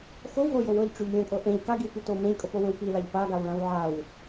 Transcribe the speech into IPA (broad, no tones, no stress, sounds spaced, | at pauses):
x o w ɦ o j o w ɤ ʎ ʈ͡ʂ y ʎ lʲ õ kʼ ɤ ʔ ẽ ʎ k a ɡ i w k y t oː m ẽ ʎ kʼ ɤ p o w ẽ w p i l a ʎ p a ɡ a w ɭ ã w ʕ a w